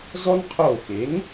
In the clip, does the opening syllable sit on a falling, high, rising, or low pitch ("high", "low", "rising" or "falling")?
high